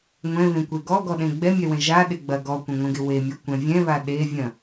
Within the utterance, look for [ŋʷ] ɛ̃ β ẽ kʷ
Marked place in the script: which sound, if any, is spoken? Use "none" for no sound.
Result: ŋʷ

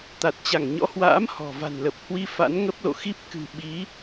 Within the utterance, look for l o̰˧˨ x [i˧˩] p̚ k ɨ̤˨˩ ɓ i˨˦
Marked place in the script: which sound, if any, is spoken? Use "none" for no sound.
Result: i˦˥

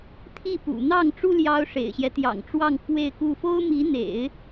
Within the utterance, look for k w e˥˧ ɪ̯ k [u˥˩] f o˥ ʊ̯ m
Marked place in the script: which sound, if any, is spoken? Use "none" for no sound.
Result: u˥˩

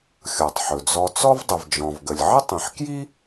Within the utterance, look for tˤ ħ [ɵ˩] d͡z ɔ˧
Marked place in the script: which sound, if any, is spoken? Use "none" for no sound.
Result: ɵ˩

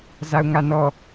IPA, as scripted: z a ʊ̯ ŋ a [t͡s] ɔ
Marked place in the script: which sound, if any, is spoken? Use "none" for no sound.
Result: n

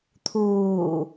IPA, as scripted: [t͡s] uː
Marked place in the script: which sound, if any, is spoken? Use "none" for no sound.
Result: t̪ʰ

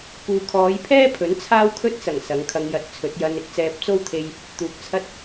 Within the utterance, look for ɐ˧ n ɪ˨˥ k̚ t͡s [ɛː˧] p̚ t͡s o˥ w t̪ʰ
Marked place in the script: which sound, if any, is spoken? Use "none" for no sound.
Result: ɛː˧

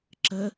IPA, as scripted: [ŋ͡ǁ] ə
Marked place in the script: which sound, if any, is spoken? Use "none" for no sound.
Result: ǁ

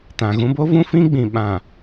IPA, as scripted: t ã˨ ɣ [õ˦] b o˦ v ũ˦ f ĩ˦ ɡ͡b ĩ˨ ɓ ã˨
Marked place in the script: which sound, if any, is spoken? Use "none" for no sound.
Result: ũ˦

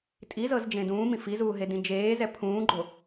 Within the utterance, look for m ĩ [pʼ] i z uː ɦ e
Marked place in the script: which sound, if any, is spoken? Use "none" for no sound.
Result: f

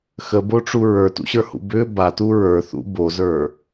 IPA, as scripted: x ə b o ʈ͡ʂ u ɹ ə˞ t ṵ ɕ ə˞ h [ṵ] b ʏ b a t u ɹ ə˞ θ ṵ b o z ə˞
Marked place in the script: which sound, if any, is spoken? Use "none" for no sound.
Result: ṵ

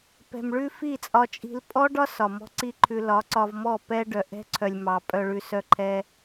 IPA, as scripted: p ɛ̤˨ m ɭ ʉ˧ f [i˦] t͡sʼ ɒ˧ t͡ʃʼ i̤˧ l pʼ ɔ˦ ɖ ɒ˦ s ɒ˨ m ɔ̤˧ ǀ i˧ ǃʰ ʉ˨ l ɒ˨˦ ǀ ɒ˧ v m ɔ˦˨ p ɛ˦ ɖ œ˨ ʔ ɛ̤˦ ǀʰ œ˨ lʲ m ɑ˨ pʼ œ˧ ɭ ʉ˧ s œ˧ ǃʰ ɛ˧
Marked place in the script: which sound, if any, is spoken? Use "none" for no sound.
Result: i˦˨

